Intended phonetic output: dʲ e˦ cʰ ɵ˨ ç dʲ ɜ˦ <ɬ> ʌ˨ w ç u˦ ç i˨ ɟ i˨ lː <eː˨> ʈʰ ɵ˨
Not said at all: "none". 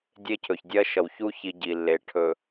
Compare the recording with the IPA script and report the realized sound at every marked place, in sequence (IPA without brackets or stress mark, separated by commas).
ʃ, e˨